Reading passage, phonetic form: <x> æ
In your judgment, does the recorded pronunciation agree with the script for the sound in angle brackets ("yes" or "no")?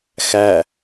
yes